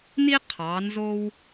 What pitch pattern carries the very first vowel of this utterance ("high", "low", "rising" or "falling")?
high